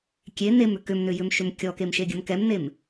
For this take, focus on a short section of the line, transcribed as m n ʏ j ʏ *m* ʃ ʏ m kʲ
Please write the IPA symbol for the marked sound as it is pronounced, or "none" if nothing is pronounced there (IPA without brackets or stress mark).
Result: m